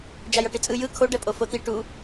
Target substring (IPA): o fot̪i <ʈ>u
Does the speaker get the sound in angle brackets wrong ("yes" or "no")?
no